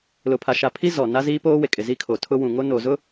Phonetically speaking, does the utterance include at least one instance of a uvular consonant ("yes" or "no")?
no